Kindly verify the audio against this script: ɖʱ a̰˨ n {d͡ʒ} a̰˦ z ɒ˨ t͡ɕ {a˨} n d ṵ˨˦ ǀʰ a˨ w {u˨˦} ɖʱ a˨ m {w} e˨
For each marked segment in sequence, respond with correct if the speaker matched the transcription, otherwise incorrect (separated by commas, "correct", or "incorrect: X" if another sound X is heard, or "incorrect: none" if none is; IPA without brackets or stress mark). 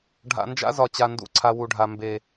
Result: correct, correct, incorrect: u˨, incorrect: b